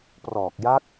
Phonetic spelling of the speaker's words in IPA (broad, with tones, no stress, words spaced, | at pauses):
prɔː˨˩k̚ja˦˥k̚